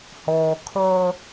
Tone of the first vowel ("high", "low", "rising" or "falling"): low